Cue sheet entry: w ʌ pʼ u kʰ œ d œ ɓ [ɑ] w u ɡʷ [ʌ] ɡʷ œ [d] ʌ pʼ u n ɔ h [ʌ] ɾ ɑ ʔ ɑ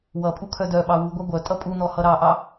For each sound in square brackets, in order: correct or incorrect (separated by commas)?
correct, incorrect, incorrect, correct